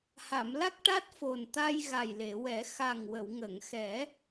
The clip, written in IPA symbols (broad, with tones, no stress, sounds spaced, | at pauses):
h a˨˩˨ m l a˦˥ k̚ ʈ a˦˥ t̚ f o˨˩ n t̪ a˧ j ɣ a˨˩ j l e˨˩˨ w ɛ˨˩˦ x a˨˩ ŋ w ə˨˩˨ w ŋ ə˨˩˨ ŋ x ɛ˨˩˦